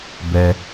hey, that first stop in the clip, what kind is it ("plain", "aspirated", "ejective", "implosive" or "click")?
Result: plain